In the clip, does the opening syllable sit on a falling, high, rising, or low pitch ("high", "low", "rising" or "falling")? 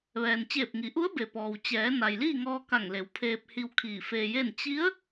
low